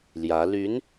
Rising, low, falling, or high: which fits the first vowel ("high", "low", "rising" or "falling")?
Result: rising